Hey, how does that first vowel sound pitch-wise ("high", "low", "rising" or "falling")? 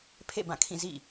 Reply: falling